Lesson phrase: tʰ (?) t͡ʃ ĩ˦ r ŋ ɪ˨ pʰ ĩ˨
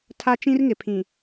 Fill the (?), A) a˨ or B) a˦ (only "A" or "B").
B